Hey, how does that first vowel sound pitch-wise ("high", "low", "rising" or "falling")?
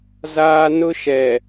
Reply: high